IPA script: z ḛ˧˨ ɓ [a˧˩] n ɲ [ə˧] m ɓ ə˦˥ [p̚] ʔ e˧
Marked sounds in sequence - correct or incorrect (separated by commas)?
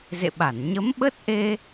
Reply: correct, incorrect, incorrect